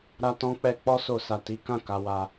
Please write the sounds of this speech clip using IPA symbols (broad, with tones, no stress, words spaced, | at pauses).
ɾa˧tɔ̃˧k͡pɛ˧ k͡pɔ˦so˧ sa˧ti˦ kã˦˨ ka˧wa˧